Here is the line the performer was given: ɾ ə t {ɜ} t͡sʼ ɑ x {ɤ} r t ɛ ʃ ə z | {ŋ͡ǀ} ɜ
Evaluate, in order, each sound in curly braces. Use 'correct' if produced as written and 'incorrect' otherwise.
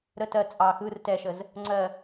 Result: correct, incorrect: ɯ, correct

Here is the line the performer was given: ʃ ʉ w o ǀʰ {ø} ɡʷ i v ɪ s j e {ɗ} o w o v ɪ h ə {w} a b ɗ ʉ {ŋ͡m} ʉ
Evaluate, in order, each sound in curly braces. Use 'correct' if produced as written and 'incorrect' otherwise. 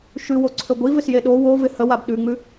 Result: correct, correct, correct, correct

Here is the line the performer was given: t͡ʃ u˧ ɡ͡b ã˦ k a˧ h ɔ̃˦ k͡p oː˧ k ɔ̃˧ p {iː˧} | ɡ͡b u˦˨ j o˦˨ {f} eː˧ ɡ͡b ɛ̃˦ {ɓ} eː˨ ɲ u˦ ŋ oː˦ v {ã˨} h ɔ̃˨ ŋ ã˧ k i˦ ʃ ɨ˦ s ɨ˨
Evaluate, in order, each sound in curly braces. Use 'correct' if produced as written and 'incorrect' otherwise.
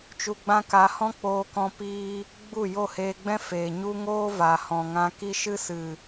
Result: correct, incorrect: h, incorrect: f, incorrect: a˨

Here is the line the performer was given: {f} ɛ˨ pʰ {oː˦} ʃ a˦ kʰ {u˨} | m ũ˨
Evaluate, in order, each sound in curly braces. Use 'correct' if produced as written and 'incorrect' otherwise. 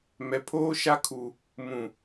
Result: incorrect: m, correct, correct

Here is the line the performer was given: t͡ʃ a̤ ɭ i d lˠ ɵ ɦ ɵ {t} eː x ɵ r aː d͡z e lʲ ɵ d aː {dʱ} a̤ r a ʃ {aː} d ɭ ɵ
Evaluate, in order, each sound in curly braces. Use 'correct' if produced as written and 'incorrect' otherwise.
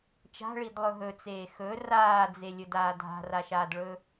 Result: incorrect: t͡s, correct, correct

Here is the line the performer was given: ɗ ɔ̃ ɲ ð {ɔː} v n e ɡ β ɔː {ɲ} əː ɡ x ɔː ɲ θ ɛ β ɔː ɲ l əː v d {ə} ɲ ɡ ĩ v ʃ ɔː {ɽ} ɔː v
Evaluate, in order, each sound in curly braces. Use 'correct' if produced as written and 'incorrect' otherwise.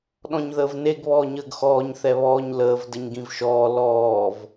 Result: incorrect: əː, correct, correct, incorrect: l

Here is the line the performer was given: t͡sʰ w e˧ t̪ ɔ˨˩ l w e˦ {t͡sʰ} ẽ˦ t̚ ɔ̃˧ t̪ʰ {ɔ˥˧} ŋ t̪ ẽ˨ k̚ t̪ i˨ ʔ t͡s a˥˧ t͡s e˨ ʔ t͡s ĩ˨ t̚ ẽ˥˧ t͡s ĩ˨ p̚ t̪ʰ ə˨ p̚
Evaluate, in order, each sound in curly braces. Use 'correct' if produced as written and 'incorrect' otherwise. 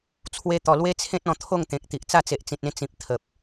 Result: correct, incorrect: o˥˧

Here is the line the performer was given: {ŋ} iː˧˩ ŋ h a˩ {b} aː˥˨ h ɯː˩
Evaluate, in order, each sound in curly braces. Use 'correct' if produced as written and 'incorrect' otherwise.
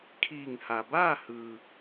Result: incorrect: kʰ, correct

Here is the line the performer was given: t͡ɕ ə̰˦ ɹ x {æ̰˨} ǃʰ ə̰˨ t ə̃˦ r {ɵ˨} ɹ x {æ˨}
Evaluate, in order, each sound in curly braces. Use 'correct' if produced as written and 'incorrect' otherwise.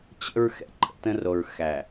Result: incorrect: ɛ̰˨, incorrect: o˨, correct

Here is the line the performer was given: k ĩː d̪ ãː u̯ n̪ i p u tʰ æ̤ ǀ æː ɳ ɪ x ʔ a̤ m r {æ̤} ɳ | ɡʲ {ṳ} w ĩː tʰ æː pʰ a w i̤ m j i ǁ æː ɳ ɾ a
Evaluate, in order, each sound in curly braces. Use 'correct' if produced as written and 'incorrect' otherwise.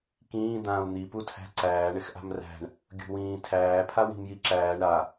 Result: correct, correct

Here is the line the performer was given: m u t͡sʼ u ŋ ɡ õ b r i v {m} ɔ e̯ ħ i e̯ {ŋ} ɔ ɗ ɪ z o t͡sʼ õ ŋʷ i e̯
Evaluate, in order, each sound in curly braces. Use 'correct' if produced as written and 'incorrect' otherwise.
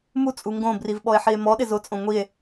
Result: incorrect: ɓ, incorrect: m

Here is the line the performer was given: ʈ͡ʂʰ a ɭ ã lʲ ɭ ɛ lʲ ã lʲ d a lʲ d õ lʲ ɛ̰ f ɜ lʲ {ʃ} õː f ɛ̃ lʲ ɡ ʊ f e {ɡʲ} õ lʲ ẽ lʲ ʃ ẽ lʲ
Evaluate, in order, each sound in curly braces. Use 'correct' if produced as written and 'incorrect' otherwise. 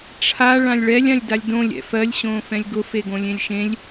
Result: incorrect: ɕ, incorrect: ɡ

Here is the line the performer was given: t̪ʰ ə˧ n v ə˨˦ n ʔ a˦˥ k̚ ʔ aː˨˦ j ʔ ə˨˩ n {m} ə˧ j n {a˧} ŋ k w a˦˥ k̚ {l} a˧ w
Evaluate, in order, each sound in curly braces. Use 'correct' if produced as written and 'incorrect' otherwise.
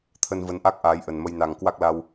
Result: correct, incorrect: a˨˩, correct

